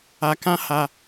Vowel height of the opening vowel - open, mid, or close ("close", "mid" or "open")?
open